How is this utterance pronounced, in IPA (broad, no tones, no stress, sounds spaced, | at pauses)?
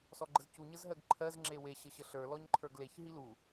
s ɔ ɡ͡ǃ ə z c u ɲ ə z ɦ ɜ ɡ ǃʰ ɜ z ŋ͡ǁ e w e ɕ ə ɕ ə ɬ ə˞ l ɔ ɲ ǃʰ ə˞ ɡ l e ç ɦ i l u